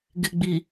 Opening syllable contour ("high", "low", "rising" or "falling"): low